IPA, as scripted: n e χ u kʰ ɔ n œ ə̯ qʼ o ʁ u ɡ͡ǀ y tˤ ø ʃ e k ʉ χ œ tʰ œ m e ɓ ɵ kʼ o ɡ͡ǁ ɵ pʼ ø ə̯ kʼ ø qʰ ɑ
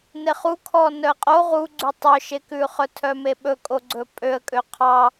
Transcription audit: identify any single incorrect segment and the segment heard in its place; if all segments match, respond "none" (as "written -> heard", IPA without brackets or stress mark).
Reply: ɡ͡ǁ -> ɡ͡ǀ